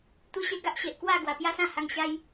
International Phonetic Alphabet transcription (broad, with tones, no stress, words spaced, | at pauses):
t̪u˦ɕe˦ ɡa˦ʔɕe˨ʔkwa˥˧ɡwa˨˩ pja˦sã˥˧ha˧ŋɕa˦j